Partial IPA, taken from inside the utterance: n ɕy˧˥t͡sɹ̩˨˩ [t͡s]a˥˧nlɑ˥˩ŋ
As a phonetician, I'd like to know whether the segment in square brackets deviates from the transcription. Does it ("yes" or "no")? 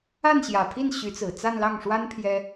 no